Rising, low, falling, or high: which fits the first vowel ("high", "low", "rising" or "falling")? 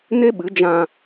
high